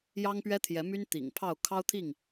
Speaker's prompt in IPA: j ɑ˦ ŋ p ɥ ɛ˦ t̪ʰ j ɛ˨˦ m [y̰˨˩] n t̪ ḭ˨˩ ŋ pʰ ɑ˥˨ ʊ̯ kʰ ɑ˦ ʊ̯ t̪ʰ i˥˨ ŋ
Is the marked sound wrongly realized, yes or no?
yes